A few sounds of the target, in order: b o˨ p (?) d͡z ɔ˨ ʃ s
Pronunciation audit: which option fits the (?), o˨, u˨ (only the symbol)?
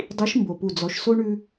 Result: u˨